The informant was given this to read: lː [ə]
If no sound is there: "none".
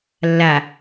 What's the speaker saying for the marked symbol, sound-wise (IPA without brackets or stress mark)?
a